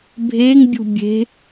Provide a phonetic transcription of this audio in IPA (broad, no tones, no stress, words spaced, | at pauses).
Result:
bʱeŋbʲṳ bʲe̤